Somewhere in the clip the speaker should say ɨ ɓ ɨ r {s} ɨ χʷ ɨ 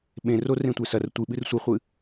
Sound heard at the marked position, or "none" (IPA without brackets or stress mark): sʷ